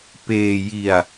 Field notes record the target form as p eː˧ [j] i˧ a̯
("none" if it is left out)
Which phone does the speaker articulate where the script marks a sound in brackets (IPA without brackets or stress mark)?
j